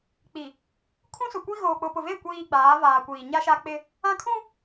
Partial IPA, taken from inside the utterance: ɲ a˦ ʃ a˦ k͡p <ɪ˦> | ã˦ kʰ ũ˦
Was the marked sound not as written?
no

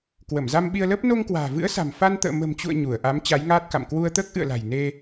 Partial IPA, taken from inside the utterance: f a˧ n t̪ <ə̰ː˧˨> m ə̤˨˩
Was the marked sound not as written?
no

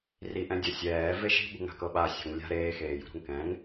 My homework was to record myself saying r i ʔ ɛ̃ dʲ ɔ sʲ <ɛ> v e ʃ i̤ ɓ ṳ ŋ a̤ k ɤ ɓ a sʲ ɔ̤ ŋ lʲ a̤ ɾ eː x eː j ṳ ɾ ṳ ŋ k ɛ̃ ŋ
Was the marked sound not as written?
yes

